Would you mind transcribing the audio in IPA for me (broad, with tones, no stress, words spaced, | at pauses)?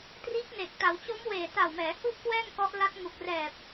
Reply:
triː˦˥k̚ne˨˩k̚ ta˩˦wt͡ɕo˦˥mweː˨˩ ta˨˩wmɛː˩˦hu˦˥ʔ kwɛː˥˩ŋkɔ˦˥ʔla˦˥t̚ ŋu˨˩k̚rɛː˨˩p̚